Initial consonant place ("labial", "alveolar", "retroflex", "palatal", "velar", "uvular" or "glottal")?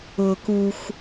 velar